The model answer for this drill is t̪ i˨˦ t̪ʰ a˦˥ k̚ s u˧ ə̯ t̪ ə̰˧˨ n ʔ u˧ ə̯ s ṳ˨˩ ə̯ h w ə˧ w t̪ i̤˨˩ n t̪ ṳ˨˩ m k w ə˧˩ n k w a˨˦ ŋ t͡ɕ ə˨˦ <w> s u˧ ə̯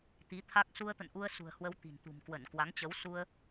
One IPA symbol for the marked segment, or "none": w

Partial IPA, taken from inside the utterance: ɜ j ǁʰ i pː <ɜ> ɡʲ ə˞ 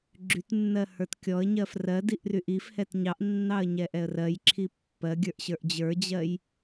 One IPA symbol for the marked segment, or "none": ɜ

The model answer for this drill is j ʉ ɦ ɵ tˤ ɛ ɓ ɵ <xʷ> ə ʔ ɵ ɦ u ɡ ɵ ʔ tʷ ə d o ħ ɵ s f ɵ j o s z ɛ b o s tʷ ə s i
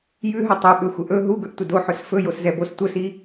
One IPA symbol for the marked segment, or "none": xʷ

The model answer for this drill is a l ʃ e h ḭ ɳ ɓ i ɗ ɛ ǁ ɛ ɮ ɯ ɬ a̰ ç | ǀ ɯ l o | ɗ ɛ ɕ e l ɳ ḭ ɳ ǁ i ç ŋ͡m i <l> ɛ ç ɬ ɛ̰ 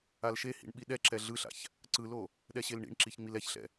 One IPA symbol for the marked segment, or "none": l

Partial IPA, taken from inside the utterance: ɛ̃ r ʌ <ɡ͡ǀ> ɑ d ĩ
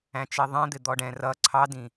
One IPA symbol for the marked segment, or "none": ǀʰ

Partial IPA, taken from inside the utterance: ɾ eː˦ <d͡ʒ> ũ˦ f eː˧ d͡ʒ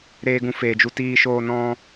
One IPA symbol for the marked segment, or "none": ɡ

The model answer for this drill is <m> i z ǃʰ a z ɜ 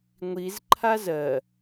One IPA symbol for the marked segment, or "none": ŋʷ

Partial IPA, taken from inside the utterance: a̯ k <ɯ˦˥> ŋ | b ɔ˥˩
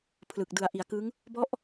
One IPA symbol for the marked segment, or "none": ɯ˦˥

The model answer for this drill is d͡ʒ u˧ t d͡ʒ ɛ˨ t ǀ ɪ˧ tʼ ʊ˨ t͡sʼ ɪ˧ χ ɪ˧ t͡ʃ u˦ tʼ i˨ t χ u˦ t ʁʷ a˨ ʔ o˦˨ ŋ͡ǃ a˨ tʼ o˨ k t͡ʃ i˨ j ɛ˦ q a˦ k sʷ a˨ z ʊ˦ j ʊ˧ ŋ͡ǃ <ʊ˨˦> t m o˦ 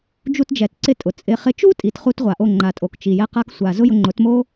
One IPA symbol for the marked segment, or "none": ʊ˨˦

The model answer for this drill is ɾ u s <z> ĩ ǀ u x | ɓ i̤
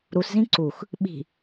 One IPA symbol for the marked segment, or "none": z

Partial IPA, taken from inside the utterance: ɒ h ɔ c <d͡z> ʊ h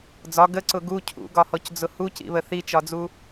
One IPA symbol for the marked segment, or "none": d͡z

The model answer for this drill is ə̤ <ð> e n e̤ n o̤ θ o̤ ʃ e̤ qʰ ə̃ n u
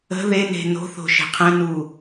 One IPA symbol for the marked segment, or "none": ð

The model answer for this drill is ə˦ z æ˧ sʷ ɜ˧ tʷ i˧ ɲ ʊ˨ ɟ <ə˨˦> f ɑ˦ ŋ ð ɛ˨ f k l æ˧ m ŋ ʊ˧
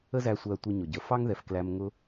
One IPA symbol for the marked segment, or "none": ə˨˦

